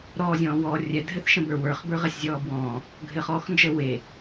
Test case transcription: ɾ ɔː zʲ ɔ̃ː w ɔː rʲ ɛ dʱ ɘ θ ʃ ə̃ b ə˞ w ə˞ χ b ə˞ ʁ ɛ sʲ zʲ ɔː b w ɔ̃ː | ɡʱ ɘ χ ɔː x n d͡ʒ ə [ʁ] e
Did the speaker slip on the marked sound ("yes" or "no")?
yes